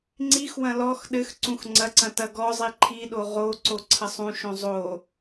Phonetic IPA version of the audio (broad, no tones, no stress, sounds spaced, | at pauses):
ŋ͡ǀ i x w ɐ̃ l ɔ x ɗ ɘ x ǀ ũ x ŋ͡ǀ ɐ ǀ ɐ̃ t ɐ ɡ ɔ zˤ i ǃʰ i ɗ o ʁ o ǀ o ǀʰ ɐ sˤ ũ ʃ õ zˤ o